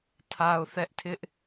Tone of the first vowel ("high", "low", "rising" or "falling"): low